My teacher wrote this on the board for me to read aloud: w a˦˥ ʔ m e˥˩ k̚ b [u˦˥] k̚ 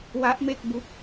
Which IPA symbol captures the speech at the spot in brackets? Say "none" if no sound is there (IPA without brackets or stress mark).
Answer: u˦˥